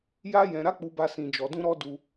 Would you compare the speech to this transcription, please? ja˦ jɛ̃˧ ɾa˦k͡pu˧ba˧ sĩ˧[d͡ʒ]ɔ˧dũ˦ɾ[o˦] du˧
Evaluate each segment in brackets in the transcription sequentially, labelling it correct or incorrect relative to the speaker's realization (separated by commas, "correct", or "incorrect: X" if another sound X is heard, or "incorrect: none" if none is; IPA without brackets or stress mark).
correct, incorrect: ɔ˦